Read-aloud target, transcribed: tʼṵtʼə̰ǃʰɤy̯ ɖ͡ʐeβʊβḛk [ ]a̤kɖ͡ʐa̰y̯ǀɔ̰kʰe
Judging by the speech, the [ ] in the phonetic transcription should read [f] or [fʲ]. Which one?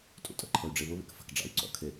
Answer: f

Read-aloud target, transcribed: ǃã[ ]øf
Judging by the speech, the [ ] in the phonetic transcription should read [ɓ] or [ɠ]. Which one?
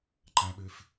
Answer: ɓ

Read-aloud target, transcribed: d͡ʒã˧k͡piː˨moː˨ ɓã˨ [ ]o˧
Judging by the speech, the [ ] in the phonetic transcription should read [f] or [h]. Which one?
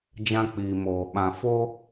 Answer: f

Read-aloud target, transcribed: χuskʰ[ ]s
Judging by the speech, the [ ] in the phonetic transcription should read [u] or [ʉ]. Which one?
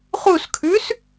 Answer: ʉ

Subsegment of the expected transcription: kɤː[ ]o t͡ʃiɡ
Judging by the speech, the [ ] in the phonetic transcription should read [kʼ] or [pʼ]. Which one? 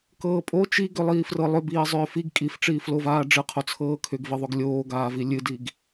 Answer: pʼ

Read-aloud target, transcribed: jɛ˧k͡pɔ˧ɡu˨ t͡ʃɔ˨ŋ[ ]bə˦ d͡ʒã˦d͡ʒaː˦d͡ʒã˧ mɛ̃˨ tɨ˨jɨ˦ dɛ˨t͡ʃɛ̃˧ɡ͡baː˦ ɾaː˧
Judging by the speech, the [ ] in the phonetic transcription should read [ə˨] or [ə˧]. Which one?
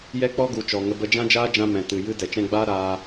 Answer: ə˧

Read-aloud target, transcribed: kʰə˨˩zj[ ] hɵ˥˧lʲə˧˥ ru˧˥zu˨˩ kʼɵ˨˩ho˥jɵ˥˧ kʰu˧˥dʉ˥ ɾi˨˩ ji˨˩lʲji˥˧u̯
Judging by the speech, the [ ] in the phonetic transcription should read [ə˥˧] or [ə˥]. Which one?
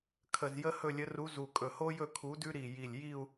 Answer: ə˥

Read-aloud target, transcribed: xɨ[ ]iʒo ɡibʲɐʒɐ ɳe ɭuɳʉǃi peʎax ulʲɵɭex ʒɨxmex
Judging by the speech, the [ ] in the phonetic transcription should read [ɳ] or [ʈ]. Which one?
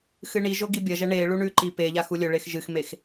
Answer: ɳ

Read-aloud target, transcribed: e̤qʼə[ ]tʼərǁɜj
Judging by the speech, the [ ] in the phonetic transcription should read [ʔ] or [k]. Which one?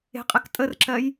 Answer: k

